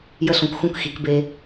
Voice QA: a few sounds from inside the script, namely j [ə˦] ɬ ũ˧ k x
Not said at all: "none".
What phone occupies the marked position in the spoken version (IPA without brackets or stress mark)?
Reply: ə˦